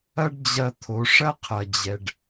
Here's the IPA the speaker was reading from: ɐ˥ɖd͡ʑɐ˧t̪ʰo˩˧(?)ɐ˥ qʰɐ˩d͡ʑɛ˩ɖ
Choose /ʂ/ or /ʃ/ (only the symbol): ʂ